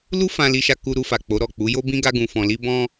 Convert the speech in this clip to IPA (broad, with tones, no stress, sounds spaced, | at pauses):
l u˦ f ã˧ l i˧ ʃ a˧ k u˧ ɾ u˧ f a˨ k͡p o˨˦ ɾ ɔ˦˨ k͡p u˨˦ j o˦ b ĩ˦ ɡ a˦ ɡ ũ˧ f ɔ̃˧ l i˦ b ɔ̃˦